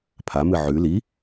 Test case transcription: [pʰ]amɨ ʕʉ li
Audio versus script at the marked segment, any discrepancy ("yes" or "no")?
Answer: no